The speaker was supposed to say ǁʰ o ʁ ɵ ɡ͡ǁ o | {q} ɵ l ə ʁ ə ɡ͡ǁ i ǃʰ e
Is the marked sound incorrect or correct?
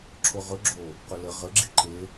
correct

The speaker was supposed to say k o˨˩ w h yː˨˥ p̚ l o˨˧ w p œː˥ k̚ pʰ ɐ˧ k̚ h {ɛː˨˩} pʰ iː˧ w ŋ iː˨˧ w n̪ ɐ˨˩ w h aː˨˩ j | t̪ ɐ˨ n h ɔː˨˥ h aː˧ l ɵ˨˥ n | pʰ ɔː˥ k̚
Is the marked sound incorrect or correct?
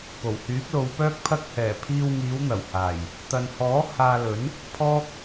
correct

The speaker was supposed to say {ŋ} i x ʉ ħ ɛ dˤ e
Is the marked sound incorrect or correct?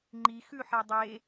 incorrect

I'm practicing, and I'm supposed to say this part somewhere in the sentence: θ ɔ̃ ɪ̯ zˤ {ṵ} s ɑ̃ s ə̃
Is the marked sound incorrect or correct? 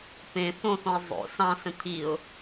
incorrect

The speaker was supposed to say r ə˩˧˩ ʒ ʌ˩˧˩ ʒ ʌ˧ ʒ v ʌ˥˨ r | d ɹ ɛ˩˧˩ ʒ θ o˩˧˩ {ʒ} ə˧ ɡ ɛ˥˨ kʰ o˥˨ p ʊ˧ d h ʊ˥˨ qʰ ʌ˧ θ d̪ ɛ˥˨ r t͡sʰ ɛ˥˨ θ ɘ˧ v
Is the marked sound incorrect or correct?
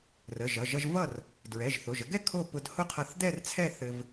correct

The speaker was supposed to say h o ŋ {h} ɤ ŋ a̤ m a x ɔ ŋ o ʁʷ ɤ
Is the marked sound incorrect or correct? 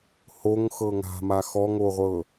incorrect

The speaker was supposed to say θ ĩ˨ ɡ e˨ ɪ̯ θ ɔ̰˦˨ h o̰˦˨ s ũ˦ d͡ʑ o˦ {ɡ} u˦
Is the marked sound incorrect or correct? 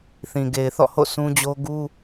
correct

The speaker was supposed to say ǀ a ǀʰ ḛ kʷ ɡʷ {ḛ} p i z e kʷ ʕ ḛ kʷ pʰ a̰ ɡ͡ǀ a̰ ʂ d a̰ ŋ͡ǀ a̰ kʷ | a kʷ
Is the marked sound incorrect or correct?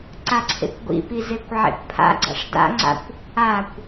incorrect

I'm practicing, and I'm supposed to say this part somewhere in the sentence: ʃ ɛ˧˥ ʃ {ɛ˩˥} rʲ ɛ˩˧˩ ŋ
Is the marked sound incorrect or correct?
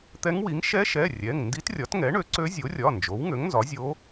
incorrect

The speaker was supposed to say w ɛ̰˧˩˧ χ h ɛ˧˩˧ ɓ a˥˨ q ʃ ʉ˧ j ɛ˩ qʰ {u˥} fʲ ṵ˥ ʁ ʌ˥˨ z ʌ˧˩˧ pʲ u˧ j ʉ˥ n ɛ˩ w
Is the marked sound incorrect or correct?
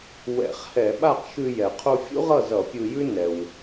incorrect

